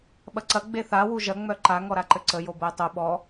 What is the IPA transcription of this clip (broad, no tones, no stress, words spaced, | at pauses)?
ɓɐǀɐ ɡ͡beθa wuʒɐ ŋ͡mœǃa ŋɔɾaǃɘǀə jobojtˤu ɓɔ